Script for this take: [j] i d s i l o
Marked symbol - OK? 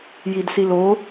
yes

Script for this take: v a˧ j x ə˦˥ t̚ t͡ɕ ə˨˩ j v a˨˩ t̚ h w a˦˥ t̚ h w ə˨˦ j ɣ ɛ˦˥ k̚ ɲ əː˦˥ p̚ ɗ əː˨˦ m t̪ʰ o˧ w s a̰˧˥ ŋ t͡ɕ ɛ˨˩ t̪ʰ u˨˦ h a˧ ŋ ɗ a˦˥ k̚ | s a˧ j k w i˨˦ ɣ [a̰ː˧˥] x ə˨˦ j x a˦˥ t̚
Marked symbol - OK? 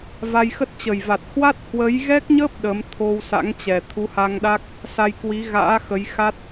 yes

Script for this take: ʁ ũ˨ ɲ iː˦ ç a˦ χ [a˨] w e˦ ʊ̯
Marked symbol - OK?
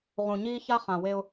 no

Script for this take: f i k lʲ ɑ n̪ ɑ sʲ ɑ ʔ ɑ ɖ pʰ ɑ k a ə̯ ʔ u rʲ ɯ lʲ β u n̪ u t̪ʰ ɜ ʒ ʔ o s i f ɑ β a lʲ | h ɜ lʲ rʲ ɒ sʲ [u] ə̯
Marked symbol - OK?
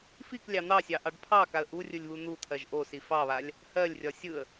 no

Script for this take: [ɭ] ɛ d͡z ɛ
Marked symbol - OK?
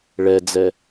yes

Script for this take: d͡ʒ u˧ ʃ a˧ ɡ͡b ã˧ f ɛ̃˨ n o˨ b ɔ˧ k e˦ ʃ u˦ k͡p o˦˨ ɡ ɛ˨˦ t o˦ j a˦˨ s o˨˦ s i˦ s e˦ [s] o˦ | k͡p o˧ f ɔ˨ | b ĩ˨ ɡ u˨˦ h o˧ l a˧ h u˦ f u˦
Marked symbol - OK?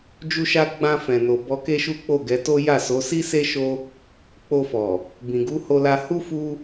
no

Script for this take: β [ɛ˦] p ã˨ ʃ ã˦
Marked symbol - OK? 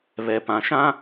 no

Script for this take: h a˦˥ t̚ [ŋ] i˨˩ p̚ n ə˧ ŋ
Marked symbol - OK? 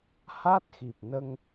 no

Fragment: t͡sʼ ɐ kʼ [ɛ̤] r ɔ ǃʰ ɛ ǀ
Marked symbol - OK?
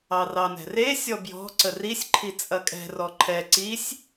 yes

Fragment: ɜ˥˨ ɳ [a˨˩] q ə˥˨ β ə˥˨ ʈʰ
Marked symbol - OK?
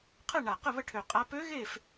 yes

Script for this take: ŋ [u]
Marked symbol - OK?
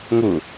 no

